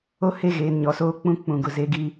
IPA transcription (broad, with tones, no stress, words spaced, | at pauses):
o˦ he˦˨ɣeː˨nɲɔ˨soː˦ k͡pũ˦ k͡pũ˨ɡʊ˨ze˦ ɡi˦